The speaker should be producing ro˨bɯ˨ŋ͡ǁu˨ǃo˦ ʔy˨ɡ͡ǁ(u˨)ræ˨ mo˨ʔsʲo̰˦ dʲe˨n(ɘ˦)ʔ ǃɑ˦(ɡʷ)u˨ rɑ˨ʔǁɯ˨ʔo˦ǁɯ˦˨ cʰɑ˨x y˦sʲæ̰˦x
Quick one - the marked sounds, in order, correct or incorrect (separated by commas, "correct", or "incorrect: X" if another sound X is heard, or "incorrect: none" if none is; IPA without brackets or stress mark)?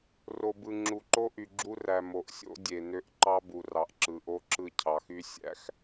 incorrect: u˦, incorrect: ø˦, incorrect: b